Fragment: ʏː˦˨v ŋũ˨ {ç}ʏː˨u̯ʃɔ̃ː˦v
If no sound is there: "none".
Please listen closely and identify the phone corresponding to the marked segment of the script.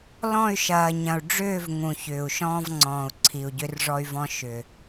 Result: ç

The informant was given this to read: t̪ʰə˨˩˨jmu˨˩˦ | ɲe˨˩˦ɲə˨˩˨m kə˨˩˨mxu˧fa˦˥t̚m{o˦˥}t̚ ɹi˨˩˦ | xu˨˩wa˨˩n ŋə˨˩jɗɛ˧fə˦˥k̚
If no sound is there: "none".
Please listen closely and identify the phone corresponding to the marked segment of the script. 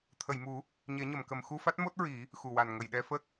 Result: o˦˥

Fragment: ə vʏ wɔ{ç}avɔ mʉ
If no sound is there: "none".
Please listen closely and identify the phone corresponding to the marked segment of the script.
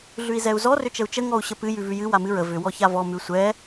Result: ç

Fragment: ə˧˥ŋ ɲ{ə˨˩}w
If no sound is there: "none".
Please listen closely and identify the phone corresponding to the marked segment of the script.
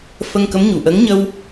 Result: ə˧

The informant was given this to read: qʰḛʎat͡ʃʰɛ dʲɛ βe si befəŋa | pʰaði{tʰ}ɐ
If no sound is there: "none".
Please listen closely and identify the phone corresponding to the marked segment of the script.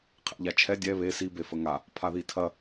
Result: tʰ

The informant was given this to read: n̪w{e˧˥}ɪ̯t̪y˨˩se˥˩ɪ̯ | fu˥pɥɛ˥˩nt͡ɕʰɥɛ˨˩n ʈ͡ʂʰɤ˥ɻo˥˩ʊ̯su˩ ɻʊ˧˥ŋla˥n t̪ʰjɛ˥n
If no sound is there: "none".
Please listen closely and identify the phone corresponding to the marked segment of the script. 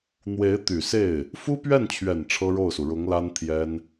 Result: e˧˥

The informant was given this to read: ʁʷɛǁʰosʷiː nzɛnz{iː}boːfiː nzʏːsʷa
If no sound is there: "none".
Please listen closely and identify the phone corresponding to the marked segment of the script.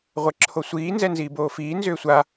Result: iː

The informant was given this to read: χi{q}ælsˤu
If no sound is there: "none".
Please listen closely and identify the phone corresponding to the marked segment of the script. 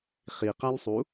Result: q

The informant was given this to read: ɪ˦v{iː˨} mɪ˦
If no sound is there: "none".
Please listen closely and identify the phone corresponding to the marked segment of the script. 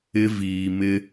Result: iː˨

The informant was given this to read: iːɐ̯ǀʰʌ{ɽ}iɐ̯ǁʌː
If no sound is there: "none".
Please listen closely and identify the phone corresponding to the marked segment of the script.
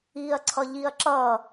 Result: ʎ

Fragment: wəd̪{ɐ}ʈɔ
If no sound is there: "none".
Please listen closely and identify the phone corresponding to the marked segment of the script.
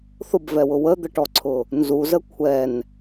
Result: ə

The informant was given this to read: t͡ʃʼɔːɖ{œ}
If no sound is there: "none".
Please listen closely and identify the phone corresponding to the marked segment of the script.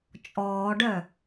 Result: œ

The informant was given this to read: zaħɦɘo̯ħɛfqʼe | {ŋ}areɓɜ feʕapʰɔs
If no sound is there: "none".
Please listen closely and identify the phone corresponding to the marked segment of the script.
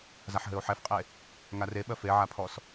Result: ŋ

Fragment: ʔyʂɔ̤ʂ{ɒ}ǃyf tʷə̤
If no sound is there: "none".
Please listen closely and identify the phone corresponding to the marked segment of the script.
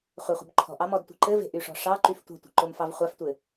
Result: ɑ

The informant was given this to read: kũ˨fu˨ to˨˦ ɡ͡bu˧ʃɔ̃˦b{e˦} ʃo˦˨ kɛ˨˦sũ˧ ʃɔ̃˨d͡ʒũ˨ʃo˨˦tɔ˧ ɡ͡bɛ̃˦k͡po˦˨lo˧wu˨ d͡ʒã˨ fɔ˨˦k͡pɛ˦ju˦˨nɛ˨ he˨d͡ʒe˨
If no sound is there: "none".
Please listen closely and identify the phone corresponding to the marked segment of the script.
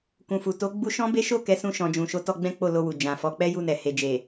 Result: e˦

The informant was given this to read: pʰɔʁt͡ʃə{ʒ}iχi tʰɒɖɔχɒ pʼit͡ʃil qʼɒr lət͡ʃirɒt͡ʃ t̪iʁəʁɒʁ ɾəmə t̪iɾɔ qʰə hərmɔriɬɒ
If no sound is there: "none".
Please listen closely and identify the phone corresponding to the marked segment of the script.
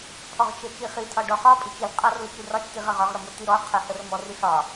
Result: t͡ʃ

